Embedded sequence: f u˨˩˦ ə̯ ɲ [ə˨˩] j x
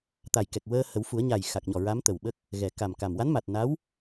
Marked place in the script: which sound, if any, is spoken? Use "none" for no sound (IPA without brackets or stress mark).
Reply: a˨˩